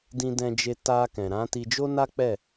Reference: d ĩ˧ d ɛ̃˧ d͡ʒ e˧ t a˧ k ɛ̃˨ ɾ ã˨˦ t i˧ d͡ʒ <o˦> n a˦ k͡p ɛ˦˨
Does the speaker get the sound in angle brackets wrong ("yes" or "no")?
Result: no